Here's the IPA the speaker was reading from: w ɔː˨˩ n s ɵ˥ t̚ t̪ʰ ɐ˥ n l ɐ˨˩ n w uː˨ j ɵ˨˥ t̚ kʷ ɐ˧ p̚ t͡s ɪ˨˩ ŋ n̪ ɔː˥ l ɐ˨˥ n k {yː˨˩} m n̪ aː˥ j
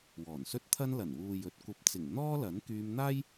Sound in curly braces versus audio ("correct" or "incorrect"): incorrect